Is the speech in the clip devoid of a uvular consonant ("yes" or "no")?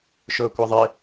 yes